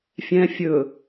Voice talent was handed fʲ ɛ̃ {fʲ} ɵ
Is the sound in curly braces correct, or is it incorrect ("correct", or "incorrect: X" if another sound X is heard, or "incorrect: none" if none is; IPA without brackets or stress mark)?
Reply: correct